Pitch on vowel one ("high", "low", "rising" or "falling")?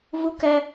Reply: high